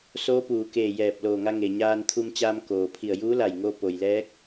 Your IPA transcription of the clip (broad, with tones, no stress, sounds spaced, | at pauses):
s oː˧˥ p uː˩ k eː˧˩ j ɛː˧˩ p̚ l oː˧˩ ŋ a˧ ŋ e˩ ɲ aː˧ n t̪ʰ u˧ m t͡ɕ aː˧ m k oː˩ pʰ i˧˩ ə̯ j uː˧˥ l a˧˩ j ŋ o˧ p o˩ j l ɛː˧˥ k̚